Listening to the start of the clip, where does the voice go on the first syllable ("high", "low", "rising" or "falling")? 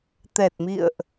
low